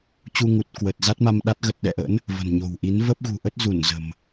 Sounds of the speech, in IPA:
t͡ɕ u˧ ŋ u˨˩ t̚ k w ə˨˩ t̚ z a˦˥ t̚ m a˧ m ɗ a˦˥ t̚ ɣ ə˨˩ t̚ ɗ ɛ̰˧˨ ʔ ə̰˧˥ n | v ə̤˨˩ n ɲ o̤˨˩ w ʔ i˨˦ n v ə˦˥ p̚ ɣ ṳ˨˩ ʔ ə˦˥ t̚ z u˧˩ n z ə̤˨˩ m

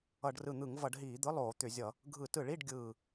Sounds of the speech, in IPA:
ʌ˧˩˧ ɖ r ɯ˧˩ n̪ ɯ˧˩˧ ŋ v ʌ˧˩˧ ɖ ɦ iː˧˩˧ d̪ ɯ˧˥˧ lˠ oː˧˩˧ t̪ ʏ˧˩˧ zʲ ʌ˧˩˧ | ɡʱ ɯ˧˩˧ t ɯ˧˩˧ ɭ i˧˥˧ ɖ ɡʲ ɯː˧˩

